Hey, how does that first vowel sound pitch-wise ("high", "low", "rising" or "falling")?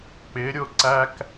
rising